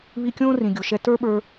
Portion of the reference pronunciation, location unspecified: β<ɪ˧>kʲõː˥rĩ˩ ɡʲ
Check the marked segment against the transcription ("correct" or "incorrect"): incorrect